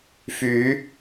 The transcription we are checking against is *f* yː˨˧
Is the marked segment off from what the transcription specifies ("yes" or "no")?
no